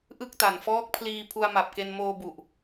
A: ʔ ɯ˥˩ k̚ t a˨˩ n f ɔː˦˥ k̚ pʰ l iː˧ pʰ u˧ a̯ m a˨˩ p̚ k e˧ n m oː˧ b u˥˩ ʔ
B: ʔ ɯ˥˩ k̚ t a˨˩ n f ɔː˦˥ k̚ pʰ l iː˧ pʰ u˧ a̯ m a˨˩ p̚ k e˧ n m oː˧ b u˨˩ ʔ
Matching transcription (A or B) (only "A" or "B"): B